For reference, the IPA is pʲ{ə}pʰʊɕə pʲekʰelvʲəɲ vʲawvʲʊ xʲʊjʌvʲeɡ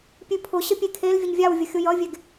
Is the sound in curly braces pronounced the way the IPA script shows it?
no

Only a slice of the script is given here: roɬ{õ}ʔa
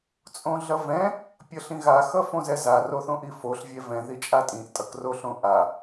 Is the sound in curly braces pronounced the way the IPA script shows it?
yes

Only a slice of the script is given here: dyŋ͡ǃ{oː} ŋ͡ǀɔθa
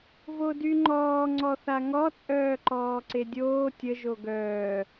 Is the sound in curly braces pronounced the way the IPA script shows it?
no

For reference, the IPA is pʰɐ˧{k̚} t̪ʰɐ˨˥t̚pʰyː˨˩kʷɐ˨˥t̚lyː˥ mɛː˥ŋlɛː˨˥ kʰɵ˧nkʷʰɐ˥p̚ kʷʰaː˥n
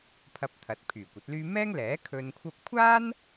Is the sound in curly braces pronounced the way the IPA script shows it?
no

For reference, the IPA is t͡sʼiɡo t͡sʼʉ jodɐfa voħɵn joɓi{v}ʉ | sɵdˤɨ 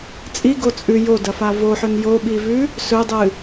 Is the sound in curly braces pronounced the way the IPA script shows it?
yes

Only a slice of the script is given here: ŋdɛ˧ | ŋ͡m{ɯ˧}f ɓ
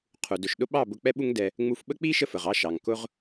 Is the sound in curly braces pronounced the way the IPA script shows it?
no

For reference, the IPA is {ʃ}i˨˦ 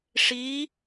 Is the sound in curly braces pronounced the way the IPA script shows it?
no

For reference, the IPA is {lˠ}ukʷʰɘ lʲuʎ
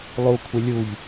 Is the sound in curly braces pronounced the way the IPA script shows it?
yes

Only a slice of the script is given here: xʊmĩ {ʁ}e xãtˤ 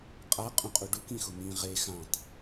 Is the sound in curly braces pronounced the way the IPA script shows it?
yes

